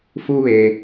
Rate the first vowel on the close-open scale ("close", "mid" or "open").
close